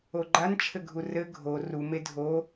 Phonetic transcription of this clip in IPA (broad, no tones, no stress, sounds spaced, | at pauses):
o ɡ͡ǃ a n t͡ʃʰ ɘ ɡʱ u r ɘ ɡʱ o r u m e dʱ o